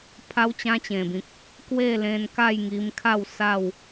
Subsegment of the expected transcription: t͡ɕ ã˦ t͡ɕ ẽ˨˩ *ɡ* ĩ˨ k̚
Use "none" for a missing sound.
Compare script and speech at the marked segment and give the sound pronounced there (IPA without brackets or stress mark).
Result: b